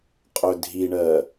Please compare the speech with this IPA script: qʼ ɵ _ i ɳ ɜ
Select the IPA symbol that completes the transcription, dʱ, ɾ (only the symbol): dʱ